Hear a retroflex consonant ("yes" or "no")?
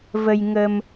no